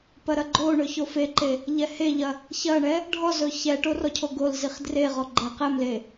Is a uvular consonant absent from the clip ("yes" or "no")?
no